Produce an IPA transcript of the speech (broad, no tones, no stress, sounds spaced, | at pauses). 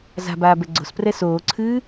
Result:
z a̤ b aː b ɛ ɡ͡ǀ o̤ s p r ɛ s oː ǀʰ ɨː